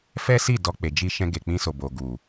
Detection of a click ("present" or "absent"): absent